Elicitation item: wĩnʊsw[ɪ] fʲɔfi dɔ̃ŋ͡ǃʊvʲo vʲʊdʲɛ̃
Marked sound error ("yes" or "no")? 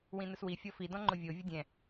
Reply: yes